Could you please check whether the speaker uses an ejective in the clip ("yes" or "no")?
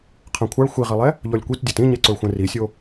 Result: no